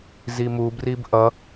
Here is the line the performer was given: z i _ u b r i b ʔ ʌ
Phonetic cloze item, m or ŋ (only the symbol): m